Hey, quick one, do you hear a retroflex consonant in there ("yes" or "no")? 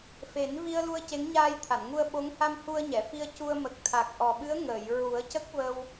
no